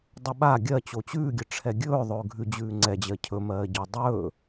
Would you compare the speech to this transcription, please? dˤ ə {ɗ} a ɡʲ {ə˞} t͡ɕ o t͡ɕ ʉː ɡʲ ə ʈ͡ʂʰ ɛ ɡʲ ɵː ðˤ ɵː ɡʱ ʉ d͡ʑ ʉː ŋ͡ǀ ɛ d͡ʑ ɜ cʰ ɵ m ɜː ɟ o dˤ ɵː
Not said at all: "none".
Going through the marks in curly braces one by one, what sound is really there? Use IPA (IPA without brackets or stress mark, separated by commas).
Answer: ɓ, ɜ